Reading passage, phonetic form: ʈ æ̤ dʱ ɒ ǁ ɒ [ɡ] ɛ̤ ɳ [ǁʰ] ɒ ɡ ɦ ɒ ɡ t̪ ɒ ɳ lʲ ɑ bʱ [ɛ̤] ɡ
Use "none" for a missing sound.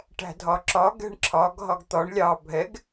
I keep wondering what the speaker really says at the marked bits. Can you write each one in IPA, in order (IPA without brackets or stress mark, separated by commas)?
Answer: ɡ, ǁʰ, ɛ